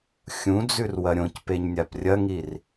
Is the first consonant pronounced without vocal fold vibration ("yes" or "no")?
yes